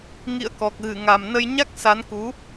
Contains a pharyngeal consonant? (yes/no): no